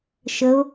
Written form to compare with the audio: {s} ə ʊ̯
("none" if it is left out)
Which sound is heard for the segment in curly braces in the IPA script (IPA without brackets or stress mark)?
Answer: ʃ